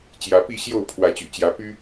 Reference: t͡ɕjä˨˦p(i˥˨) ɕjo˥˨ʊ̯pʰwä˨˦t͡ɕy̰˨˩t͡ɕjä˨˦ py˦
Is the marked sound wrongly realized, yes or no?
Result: no